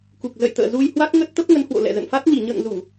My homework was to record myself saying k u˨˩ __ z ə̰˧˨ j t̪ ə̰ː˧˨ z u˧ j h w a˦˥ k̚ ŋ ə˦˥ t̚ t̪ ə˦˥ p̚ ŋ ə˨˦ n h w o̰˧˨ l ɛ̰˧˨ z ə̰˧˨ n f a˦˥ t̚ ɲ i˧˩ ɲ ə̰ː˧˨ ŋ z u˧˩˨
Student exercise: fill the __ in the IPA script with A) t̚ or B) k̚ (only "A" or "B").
B